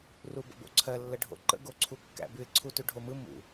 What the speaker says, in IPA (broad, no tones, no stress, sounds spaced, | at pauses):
r u b ə̰ b o̰ ǀʰ ɜ lː ə ɖʱ o̰ ǃ ə̰ ɡ o ǀʰ u kː æ̰ b ʉ ɪ̯ ǀʰ u t ʉ ɖʱ o m ɯ m ṵ